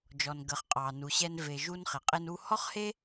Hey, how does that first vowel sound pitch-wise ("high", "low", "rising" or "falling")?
low